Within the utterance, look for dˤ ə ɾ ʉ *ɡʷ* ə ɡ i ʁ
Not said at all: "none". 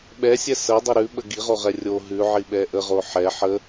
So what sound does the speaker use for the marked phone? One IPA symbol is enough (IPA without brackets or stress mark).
ɓ